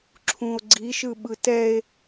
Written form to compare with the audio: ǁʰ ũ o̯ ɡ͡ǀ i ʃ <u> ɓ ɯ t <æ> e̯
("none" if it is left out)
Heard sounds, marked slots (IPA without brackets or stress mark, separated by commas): ɯ, ɛ